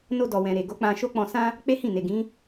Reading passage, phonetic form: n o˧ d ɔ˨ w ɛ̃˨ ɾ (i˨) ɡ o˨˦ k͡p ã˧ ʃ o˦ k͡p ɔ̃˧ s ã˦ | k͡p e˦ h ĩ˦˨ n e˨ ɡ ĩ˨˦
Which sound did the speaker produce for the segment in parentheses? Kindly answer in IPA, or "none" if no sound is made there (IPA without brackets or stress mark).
e˨